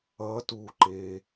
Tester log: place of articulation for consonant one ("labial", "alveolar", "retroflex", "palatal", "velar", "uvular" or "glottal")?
alveolar